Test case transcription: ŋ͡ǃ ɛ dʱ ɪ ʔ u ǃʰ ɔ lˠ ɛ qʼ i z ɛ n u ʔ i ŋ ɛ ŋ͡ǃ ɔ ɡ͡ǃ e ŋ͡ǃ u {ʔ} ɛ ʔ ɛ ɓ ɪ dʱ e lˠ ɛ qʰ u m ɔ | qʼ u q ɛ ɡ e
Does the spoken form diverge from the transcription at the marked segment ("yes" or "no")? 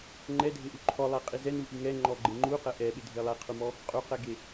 yes